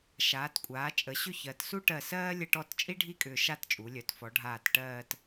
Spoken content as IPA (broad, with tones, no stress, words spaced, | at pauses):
ʃaː˩˧tkʷʼaː˩˧ t͡ʃʼə˩˧ɕʏ˥˧çɜ˩˧t su˥ʈɜ˧˩sɜː˥ lʲə˥˧ʈɔ˥˧t t͡ʃʼi˥ɖʱi˥˧ kʼʏː˧ʃa˥˧tt͡ʃʼu˩˧lʲœ˩˧t fɔ˩˧ɖʱaː˧˩t ʈɜː˥˧t